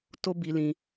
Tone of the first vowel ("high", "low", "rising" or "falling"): high